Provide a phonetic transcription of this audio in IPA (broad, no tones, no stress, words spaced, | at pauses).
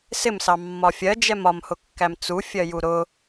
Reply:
sɪmsɑ mːɒfʲɜ d͡ʒɛmɒmhʊkːæm t͡su fʲɜjuɾʊ